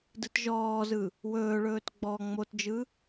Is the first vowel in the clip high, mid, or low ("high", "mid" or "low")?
high